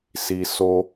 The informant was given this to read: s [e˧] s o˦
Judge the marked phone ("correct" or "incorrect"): incorrect